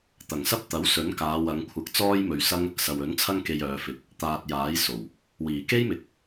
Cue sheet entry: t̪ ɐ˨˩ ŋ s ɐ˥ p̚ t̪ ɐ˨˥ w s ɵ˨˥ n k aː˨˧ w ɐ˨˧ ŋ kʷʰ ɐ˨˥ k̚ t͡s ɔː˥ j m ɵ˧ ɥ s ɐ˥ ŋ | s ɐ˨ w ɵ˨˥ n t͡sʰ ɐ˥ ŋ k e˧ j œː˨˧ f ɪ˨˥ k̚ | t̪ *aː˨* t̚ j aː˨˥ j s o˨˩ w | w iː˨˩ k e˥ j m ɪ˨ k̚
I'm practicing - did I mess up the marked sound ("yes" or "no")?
no